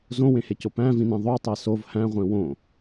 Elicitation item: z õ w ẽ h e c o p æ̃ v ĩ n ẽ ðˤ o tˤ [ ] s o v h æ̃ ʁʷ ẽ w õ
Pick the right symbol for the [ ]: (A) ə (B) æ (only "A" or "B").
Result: B